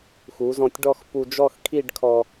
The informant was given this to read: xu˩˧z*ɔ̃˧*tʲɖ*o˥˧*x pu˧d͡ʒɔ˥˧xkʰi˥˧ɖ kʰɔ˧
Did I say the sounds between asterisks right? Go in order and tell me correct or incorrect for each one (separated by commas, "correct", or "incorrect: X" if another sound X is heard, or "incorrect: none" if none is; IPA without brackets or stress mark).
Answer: correct, incorrect: ɔ˥˧